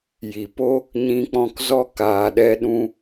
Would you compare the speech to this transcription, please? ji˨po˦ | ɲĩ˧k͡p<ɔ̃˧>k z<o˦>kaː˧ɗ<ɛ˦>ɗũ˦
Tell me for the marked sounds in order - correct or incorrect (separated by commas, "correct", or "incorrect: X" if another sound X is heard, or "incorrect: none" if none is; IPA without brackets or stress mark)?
correct, incorrect: ɔ˦, correct